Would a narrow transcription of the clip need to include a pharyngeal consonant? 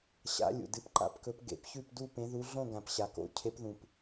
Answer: no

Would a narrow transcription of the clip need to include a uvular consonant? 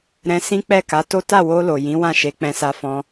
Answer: no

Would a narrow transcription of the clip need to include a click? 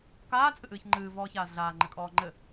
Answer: yes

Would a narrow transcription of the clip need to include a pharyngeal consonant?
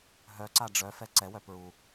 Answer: no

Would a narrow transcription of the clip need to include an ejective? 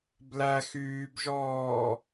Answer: no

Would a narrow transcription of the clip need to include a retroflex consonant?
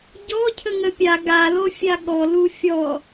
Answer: no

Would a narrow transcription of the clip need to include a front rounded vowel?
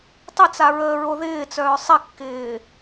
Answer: yes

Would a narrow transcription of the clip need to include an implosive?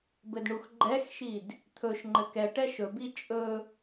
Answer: no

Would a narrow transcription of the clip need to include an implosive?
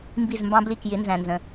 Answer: no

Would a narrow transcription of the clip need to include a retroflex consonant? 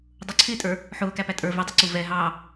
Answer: no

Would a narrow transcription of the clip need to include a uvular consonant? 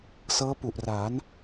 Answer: no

